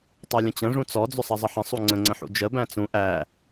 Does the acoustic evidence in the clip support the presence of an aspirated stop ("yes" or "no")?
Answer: no